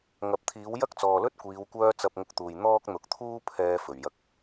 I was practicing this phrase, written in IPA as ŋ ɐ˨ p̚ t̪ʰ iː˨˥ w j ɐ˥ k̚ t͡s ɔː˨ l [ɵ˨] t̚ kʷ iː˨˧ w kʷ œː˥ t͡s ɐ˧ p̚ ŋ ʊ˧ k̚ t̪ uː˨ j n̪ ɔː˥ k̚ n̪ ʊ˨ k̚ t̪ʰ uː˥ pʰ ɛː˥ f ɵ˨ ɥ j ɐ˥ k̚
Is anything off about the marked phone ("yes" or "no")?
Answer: yes